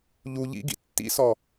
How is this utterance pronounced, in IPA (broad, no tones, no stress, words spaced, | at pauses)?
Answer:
ʎu ʎḭ ɡḭtːḭsɔ